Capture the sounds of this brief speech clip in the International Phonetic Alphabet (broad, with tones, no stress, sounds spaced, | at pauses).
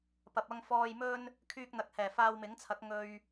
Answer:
p ɐ˨ p̚ ɐ˧ ŋ f ɔː˨ j m ɵ˧ n | kʰ yː˧ k̚ n̪ ɐ˨ k̚ h ɛː˨˩ f aː˧ w m ɪ˨˥ ŋ t͡sʰ ɐ˨˥ k̚ ŋ ɵ˧ ɥ